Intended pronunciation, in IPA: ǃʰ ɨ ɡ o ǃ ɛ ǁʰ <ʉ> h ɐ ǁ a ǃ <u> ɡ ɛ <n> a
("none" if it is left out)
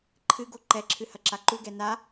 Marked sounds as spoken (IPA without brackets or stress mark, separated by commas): ɨ, u, n